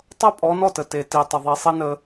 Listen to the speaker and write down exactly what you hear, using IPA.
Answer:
tˤʌ˦pʼɔ˨˦ nɔ˦˨tə˨ te˨ ti˨tˤə˨ ðˤi˨sˤi˦nə˦

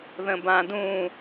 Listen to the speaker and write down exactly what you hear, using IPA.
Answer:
ðə̃bãdũ

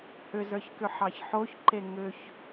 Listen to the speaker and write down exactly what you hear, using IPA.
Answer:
hʏzə˞ç kʏħɑçħoçǃe ŋʏç

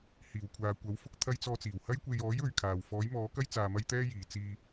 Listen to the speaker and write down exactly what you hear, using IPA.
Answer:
hiː˨˩wkʷʰaː˨ kʷɐ˨˥w fʊ˥k̚ t̪ʰɐ˧jt͡sɔː˧t͡siː˨˩whɐ˥j kʷe˨jɔː˨˥j ɵ˨˧ɥkʰaː˨w fɔː˨˥jmɔː˨˥kɐ˥j t͡saː˧mɐ˥jt̪ɛː˥jiː˨ t͡siː˧

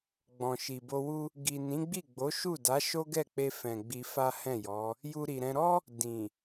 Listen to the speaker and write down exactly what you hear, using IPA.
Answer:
ɡ͡bɔ̃˨ʃi˨bo˧wu˦ | ɡi˨nĩ˨˦ɡ͡bi˦˨ ɡ͡bo˨˦ʃu˦˨ da˨˦ʃo˦ɡɛ˦˨k͡pe˧ fɛ̃˨ ɡ͡bi˧fa˦hɛ̃˦˨jɔ˨˦ | ju˧ɾi˨ɾɛ̃˧ ɾɔ˦ | dĩ˨

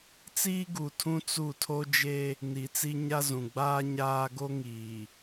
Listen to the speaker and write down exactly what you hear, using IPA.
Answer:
t͡siː˦ɡu˨tʰũ˦ t͡su˦˨ tʰo˦d͡ʒe˦ | ni˨t͡si˦ɲa˦zũ˨ ɡ͡baː˦ɲaː˦ɡo˦ ŋiː˨

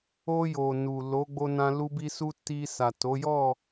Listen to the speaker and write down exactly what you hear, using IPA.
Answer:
o˧ jo˨nu˨ lo˨˦ɡ͡bo˧nã˧ lu˧bi˧su˧ ti˧ sa˨to˨˦ jɔ˦˨

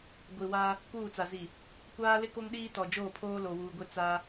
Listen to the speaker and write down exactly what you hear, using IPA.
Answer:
ɡʷi˨wa˦ | kuː˦˨t͡sa˨zi˨ | kʷaː˦lɪ˦ ko˦ŋɗiː˦tɔ˨ d͡ʒoː˦˨pʰoː˦ lo˨wuː˨ɡʷe˦ t͡sa˦

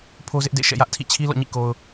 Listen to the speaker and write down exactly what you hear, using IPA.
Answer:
pʰo˦zɪ˦ʔdḛ˦˨ ʃɛ̰˦˨jä˦ʔtʰḭ˦˨ t͡ɕʰi˦ lɔ̰˦˨ɲḭ˦˨ko˨ʊ̯

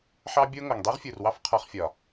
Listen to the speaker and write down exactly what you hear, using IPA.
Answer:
ħɑ˦bʲo˦ ŋo˨ŋdˤi˦ʁfʲu˨r wɑ˦fqʰɒ˧χfʲɒ˨

